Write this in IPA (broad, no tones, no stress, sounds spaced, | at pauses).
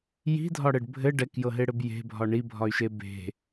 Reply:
j i̤ dʱ ɒ ɽ ɘ ɖ bʱ ɘ ɖ ɛ k j ɤ ɦ e ɽ ɘ b j e̤ bʱ ɒ ɳ i bʱ ɒ y̯ ʃ e b e̤